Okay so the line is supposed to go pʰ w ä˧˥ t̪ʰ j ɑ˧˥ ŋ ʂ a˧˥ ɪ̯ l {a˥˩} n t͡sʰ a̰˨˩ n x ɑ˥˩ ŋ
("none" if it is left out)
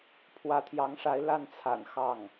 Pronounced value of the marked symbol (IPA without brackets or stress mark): a˥˩